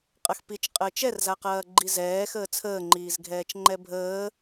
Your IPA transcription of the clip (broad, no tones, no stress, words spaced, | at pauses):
qʼɐxpit͡ʃ qʼəːt͡ʃɛrzaqɐː ɡ͡ǃizɛːxəː t͡sʰəːŋ͡ǃiːzɡʱɛːt͡ʃŋ͡ǃɛ bʱəː